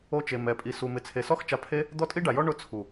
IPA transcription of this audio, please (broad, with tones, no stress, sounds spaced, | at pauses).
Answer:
o˧ t͡ʃ e˨ m ɛ˨˦ pʼ i˧ s u˨ m ɪ˨ t͡sʰ e˨ s ɔ˦ x t͡ʃ a˧ pʰ e˦ | d̪ ɔ˦ tʼ i˦ ɖ a˨ j ɔ˦ ɳ ʊ˦ t͡sʰ u˨